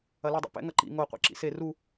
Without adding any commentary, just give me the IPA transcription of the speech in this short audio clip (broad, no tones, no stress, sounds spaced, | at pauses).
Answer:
ɐ l i dˤ ḭ p ɛ̰ ŋ ɐ ǃ ḭ ŋ o qʷ ḭ ǁ ḭ s e r u